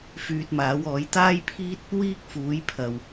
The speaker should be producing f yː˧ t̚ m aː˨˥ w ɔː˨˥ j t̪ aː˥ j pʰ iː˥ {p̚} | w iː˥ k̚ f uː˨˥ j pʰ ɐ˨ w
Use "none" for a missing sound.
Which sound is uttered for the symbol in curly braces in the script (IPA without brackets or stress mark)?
t̚